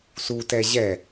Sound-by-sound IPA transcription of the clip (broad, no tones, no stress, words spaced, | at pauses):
sutɛ ʑɛ